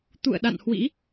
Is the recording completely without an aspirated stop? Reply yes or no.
yes